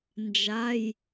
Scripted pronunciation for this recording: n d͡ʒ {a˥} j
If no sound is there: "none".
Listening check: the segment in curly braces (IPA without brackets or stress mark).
a˩˧˩